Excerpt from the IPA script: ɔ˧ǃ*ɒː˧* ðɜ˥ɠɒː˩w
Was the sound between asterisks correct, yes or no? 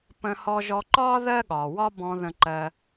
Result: no